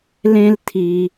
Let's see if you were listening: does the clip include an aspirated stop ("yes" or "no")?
yes